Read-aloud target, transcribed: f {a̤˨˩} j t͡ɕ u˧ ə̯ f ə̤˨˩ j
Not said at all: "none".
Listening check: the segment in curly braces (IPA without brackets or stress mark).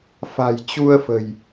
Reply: a̤˨˩